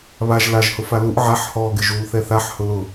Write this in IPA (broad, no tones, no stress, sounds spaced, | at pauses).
β a ʒ l a ʒ h ʊ f a l u ʔ ʕ a ħ h ɔː ɡ ɪ ʒ u l θ ɛ θ a ħ h ʊ l ʊ